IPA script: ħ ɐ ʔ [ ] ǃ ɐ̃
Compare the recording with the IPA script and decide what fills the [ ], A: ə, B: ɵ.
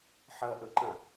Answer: B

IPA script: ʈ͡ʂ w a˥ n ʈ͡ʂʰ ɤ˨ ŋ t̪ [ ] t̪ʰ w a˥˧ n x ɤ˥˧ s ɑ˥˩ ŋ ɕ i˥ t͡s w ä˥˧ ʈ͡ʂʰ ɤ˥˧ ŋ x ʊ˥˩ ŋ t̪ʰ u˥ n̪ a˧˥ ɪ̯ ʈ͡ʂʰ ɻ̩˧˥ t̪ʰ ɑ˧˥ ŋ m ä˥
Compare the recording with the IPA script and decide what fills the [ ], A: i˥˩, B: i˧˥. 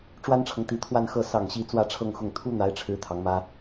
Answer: B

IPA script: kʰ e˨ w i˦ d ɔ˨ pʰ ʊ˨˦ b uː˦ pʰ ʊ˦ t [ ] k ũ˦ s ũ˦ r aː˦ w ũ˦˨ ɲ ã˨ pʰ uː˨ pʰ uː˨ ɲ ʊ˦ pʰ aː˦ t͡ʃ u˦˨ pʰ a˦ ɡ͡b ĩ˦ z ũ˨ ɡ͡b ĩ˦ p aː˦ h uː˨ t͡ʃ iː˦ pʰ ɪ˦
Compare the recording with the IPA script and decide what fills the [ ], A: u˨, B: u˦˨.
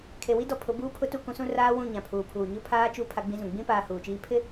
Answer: B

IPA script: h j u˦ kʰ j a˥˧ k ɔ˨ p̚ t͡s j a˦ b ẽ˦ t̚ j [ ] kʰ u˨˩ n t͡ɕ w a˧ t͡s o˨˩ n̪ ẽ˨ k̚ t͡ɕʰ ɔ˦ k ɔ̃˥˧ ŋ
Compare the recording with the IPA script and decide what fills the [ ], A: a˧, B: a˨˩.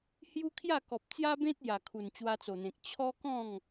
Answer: B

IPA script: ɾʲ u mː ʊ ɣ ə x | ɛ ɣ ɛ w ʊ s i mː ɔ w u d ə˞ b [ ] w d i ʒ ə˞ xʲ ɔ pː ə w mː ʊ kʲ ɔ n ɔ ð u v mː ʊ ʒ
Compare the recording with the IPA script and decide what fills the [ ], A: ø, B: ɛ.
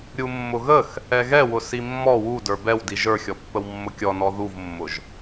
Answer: B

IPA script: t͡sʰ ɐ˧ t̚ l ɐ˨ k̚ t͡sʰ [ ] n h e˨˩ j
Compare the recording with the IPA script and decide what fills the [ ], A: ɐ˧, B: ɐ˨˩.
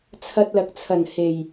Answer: B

